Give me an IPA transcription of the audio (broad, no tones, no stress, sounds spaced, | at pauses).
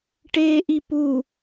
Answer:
ʈ eː ʔ i p u